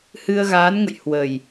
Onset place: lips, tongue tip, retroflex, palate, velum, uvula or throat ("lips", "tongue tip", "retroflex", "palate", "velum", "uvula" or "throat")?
throat